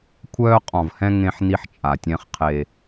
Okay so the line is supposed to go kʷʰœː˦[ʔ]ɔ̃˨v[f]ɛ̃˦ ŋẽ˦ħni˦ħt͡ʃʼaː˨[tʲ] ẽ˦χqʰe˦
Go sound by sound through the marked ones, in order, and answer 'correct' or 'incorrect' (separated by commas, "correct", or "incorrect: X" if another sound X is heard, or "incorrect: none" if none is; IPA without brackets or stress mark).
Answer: incorrect: qʼ, incorrect: h, correct